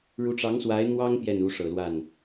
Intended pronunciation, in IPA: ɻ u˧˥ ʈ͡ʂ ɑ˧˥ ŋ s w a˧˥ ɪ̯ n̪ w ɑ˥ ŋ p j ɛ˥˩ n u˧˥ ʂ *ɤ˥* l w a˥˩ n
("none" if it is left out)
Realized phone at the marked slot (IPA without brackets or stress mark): ɤ˨˩